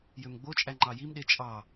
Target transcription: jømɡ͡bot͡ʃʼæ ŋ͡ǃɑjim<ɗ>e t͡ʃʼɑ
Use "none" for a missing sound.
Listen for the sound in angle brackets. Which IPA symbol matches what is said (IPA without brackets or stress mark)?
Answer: ɗ